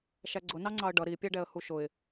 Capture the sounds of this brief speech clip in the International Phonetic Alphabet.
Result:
ʃæɡ͡ǀʊnɑ ŋ͡ǀɑə̯ɖʌ ɾipʲæɖɛə̯hu ʃʊɪ̯

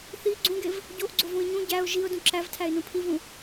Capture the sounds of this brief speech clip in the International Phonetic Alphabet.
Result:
θi ɡ͡ǀũɡev | ɟoʔɡ͡ǀovũɪ̯ ɲũ ɟæʊ̯ ʒiʊ̯dũ ǁævtʰæɪ̯nũ pʰivũ

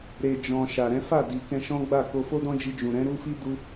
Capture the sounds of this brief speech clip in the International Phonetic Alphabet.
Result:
ɾe˨d͡ʒɔ̃˨ ʃa˨ɾɛ̃˨˦ fa˦˨di˨ kɛ̃˧ʃɔ̃˦ɡ͡ba˦˨ ko˧fo˦dɔ̃˦d͡ʒi˧ d͡ʒũ˨ ɾɛ̃˨˦ɾu˦fi˦ du˦

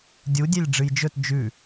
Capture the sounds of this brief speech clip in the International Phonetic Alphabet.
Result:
dʲudʲelʲ ɖ͡ʐɨjd͡ʒɵt d͡ʒʉ

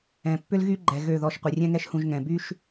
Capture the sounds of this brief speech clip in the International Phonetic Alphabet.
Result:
ɛ̃˨pːʏ˦lɣy˦ɡ͡ǃɛ˨ ɣø˦˨ðɔ˧ʃ qʷi˨rʲɛ̃˦ŋɛ˦ʃhũ˧ʒ ŋɛ̃˨by˦ʃ

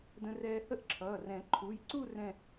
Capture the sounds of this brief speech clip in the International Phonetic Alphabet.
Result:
də̃˧rɛː˧ hə˥˧ʔǁʰʌː˩˧˩rɛ̃˨˩˦ ǃʰu˩˧˩jǀu˥˧ rɛ̃˥˧

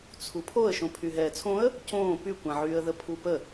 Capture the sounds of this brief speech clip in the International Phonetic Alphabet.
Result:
t͡sʰupʰoə̯ ʃõpʰyɦɛːt͡sʰõə̯ | cõː pykʷãʕyːə̯ðə pʰupə

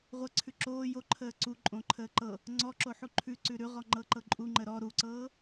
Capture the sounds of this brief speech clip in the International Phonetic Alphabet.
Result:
ʁʷəǀʰʉ ǁoː joǃʰəː ǀuǃʼõǃʰəː ǃɤ | ŋ͡ǀɔǁoħu ǃʰʉǀʉ ɾʉʁɔŋ͡ǃɤǃɤ ǃʼuŋ͡ǃə ɾɔ ɾuǀɤː

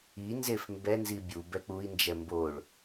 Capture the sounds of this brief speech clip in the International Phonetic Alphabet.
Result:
inzef mbɛnzi bʲu bɛk͡pui̯nd͡ʒɛ mboɭ

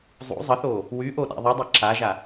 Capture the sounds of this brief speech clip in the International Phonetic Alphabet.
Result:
zˤṵ zˤəθoː | wyʔo ɗa̰ðˤudˤɛ ǁaʒa

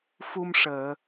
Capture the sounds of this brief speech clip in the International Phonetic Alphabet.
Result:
fu˧mʂəː˨˩˨

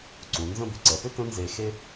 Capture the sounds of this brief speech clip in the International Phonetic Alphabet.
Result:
ǀũ˩˧nzə̃˥˧bʏ˧˩ ǀɛ˩˧pʏ˥˧ tə̃˥nze˧xe˥

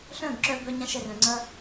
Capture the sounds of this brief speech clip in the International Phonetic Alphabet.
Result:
ɬœ̃˦˨ɡǁœ˧ bœ˧ɲã˧ʃɛ˨r œ̃˨ŋ͡ǀɐ˦

